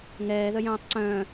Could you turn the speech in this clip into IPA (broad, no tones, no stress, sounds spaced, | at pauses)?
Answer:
ŋ ɛː ð œ j œ̃ː tˤ ǀ œ̃ː